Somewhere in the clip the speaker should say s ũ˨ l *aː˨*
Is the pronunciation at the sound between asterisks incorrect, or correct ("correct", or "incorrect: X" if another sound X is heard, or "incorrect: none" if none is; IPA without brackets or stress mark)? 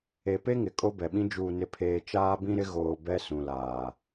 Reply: correct